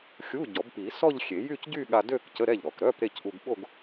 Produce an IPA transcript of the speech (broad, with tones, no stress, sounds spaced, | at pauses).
xʲ u˧˥˧ ɟ ɔ˨˩˦ b p i˨˩˦ s ɔ˥˧ ʎ xʲ e˨˩˦ j y˥˧ c ɟ y˥˧ ɠ a˧ d ø˥˧ k c ə˧˥˧ ɾ ɛ˥˩ ʎ ɾ ɔ˨˩ k ɾ œ˧˥˧ p ɾ e˥˩ c ʔ u˧ ɡ ɓ o˥˧ ɡ